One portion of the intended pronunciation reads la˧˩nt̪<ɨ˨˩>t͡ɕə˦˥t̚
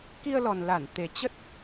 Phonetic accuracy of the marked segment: incorrect: e˨˩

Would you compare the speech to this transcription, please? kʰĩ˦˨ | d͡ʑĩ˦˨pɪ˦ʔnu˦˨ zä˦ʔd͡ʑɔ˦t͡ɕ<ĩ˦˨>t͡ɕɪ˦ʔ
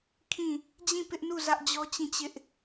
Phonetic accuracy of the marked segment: correct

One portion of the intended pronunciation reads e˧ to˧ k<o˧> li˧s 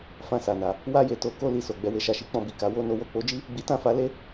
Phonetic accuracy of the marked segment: correct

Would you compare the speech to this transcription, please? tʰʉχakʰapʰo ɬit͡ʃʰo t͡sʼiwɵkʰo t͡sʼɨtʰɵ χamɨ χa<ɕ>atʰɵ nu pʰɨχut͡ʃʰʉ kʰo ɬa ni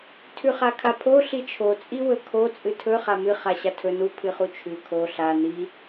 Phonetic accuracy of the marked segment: correct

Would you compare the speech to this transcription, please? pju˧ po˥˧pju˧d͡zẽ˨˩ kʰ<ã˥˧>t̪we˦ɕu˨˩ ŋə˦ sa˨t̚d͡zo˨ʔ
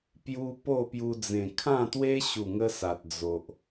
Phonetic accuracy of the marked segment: correct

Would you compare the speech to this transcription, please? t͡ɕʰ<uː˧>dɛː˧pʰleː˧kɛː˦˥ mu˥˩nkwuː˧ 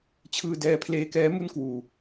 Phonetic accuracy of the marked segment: incorrect: ɯː˧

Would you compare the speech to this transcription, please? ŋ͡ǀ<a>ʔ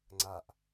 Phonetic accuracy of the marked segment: correct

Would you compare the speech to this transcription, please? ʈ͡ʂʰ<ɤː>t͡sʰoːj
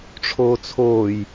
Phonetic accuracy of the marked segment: incorrect: oː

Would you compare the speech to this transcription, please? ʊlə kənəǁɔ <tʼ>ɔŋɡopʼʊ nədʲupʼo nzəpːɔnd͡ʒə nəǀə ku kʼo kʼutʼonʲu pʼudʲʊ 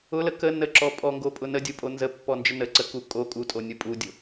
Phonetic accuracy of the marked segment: incorrect: pʼ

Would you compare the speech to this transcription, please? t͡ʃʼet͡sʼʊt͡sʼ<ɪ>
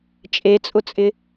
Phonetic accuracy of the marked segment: correct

